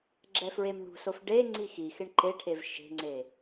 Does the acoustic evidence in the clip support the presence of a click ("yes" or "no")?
yes